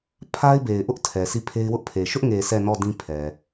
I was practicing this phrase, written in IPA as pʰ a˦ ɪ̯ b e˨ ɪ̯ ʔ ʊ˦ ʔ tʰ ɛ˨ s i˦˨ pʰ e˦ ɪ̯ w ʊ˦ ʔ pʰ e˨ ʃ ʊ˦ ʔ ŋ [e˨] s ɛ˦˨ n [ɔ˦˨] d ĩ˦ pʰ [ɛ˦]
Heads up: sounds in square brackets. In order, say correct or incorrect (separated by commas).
correct, correct, incorrect